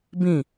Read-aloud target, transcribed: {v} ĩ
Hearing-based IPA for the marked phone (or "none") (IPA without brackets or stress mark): b